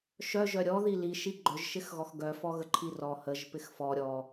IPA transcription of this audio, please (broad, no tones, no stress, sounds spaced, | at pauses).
ʃ œ ʒ œ ɾʲ ɔ ð i l i ʃ i ɡ͡ǃ œ ʒ ʃ ɪ x ɣ ɔ x ɡ œ f ɔ ɣ ə ǃʰ i r ɔ h ə ʒ p ɪ x f ɔ ɾʲ ɔ